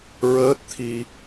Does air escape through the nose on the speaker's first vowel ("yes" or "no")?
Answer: no